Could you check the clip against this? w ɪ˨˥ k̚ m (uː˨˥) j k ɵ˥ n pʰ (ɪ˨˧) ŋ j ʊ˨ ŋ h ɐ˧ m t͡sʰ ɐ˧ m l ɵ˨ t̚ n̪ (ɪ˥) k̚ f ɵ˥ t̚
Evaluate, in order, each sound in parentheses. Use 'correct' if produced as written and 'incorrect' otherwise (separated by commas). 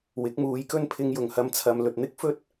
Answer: incorrect, incorrect, correct